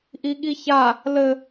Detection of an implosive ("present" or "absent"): present